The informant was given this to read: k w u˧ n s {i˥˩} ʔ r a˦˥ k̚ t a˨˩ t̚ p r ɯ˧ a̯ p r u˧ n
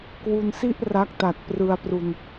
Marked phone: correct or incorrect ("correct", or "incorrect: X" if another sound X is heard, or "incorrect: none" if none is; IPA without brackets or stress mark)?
correct